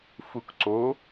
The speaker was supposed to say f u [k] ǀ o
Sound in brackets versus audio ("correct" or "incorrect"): correct